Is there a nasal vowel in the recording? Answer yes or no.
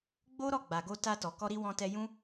yes